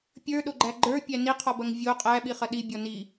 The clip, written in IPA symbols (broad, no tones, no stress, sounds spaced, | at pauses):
pʲ ə˞ ɗ o ɡ͡ǃ æ ɡ͡ǃ ə˞ pʲ æ n i qʰ ɔ b ɐ ŋ vʲ o qʼ æ ɓ i χ ɐ ɗ i bʲ ɔ n i